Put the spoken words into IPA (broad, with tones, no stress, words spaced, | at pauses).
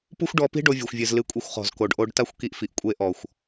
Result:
pu˦xʷɖɔ˧pi̤˦ ɖo˧vʲu˨xʷvʲɨ˨zlɨ˨˦ kʷʼi˧xʷχɔ̤˨z ko˨ɖʔo˧ɖ ta˦xʷki˧ʔfi˨ʔ kʷʼe˧ʔɔ˨xʷ